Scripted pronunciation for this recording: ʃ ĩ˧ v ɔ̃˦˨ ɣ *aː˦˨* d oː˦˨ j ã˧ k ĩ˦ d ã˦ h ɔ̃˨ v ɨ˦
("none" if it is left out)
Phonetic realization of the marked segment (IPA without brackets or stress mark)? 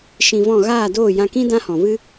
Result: aː˦˨